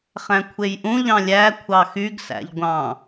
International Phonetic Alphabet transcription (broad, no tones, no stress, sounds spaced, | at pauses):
χ æ̃ kʷʰ e j ʔ ũ ʎ ɑ̃ lʲ æ kʷʰ ɑ x y ɡ s æ̰ ʎ ɡʷ ɑ̃